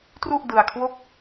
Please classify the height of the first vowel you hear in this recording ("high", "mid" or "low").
high